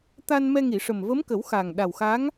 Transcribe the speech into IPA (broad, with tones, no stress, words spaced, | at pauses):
t̪a˧n mɛ˧ŋi˨˩˨ʂə˨˩m və˧˥mkə˨˩˦w xa˨˩ŋ ɗa˨˩wxa˧˥ŋ